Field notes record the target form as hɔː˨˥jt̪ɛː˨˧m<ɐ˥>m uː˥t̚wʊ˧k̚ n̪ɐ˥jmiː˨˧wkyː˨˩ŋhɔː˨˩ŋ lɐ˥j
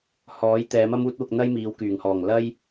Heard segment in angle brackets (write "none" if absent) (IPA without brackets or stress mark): ɐ˥